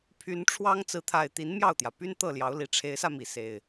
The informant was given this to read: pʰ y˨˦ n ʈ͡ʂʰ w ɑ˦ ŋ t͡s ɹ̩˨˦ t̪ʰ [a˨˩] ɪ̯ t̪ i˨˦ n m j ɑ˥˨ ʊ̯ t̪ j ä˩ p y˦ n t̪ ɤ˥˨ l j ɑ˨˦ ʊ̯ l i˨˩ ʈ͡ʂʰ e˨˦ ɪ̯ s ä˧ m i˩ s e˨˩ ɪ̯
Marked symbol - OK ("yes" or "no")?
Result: yes